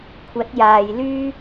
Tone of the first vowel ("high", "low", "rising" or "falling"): rising